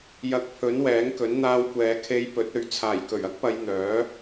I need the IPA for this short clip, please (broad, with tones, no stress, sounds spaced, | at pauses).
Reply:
j ɐ˨ k̚ pʰ ɵ˨˥ n w ɛː˨˥ ŋ k ɵ˨˥ n n̪ aː˧ w kʷ ɛː˨˧ kʰ e˧ j p ɵ˨˥ t̚ ɵ˨ ɥ t͡sʰ aː˨˩ j k ɵ˨˩ ɥ ɐ˥ k̚ p ɐ˨˧ j n̪ œː˨˥